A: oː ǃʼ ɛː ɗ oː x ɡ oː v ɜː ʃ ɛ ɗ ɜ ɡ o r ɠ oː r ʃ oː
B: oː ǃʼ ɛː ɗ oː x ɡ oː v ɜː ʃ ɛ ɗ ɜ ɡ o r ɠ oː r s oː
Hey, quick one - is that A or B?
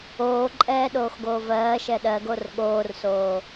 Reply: B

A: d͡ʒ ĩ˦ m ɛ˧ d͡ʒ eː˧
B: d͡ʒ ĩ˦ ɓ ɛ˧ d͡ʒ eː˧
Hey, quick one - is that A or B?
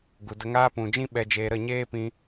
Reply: B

